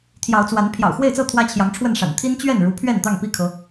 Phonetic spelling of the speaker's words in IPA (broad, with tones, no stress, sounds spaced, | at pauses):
t̪ʰ j ɑ˨˦ ʊ̯ t͡s w a˨˦ n pʰ j ɑ̰˨˩ ʊ̯ x w e˥˨ ɪ̯ t͡s ɤ˥˨ t̪ʰ w ä˦ t͡ɕʰ j ɑ˨˦ ŋ ʈ͡ʂʰ w ə˥˨ n ʂ a̰˨˩ n t̪ʰ i˦ n t͡ɕ ɥ ɛ˥˨ n ɻ u˨˦ pʰ ɥ ɛ˥˨ n t̪ ɑ˥˨ ŋ p i˥˨ kʰ ɤ˨˦